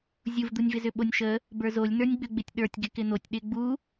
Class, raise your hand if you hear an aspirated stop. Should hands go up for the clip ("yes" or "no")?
no